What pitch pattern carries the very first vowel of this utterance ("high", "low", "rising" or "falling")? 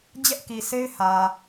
high